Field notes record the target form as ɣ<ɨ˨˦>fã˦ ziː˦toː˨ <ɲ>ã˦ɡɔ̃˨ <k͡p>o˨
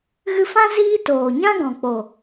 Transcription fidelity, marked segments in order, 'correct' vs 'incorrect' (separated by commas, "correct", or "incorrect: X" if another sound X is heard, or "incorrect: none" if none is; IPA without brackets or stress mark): incorrect: ɨ˧, correct, correct